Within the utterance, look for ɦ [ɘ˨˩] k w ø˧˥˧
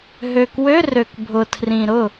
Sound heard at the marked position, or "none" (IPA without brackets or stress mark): ø˨˩